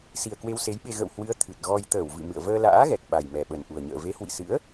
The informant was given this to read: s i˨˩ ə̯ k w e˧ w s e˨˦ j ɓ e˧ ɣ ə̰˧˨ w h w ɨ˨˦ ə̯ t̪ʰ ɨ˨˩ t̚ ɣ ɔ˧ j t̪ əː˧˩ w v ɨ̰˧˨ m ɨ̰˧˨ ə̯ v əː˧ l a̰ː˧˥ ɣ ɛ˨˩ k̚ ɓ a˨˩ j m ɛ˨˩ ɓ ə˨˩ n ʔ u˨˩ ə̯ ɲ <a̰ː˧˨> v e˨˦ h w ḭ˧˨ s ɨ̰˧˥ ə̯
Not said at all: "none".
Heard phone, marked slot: ə̰ː˧˨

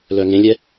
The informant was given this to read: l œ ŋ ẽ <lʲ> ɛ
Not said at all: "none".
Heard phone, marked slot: lʲ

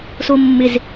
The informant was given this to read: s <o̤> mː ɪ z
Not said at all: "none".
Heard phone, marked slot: o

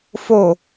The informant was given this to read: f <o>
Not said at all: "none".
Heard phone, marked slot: o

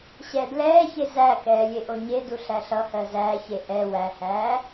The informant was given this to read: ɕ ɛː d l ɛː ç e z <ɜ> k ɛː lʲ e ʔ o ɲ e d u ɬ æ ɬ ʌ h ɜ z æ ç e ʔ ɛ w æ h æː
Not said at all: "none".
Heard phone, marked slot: æ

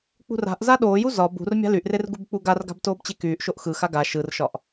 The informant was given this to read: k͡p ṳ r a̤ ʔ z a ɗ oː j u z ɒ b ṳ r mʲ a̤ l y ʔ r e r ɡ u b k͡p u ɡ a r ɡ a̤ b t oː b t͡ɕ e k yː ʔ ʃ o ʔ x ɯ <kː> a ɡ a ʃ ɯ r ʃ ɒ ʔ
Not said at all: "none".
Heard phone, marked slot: x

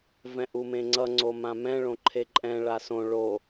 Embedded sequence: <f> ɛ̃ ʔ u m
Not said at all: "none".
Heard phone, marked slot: v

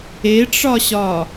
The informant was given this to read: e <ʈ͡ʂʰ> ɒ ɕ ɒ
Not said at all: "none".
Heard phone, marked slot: ʈ͡ʂ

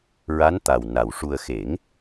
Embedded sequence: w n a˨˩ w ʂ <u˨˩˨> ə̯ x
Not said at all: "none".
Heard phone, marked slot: u˧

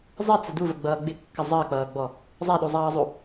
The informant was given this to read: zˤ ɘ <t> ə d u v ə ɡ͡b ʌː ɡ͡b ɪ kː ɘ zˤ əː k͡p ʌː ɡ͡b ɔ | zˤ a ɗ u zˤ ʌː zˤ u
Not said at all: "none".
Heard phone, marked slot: t͡s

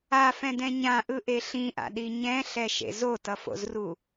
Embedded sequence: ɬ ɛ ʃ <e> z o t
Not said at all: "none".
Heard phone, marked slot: ḛ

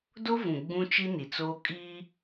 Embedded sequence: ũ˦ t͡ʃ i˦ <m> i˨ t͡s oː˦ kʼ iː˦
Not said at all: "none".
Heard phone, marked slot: n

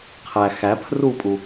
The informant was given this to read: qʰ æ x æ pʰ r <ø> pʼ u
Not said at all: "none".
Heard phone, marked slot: u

